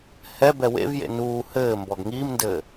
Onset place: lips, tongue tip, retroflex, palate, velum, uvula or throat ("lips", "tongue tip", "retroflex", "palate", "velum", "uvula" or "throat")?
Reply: throat